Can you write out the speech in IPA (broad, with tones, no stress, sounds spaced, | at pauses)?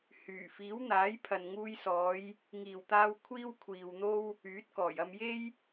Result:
h yː˨˩ f iː˨˥ w n̪ aː˨˥ j pʰ ɐ˨ n ŋ uː˧ j s ɔː˨˧ j | ŋ iː˨˩ w t̪ aː˧ w kʷʰ iː˥ w kʷʰ iː˨ w n̪ o˥ w | yː˨˥ t̚ k ɔː˨˩ j ɐ˧ m j e˥ j